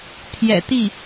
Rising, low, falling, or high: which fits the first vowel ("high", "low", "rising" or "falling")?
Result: low